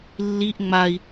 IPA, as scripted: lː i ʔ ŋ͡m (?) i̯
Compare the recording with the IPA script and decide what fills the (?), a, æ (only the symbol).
a